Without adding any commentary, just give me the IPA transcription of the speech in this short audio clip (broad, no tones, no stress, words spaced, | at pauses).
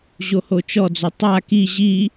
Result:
ʑohot͡ʃɔd͡zɵ tˤa ki ʑi